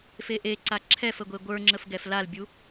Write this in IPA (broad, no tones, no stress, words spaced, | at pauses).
feʔeǀa ǁʰɛfə ɡʷeɡʷə˞ŋ͡ǁəf ɡɛflalbʲu